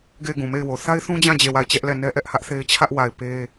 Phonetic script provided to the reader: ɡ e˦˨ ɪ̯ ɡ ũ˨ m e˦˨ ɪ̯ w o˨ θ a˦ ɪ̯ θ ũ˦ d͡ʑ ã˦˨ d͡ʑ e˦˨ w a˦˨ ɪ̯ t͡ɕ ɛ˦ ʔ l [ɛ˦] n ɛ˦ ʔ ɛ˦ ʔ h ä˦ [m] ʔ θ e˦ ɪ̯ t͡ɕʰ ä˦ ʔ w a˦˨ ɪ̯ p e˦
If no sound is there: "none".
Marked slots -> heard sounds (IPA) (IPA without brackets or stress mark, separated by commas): ɛ˦˨, none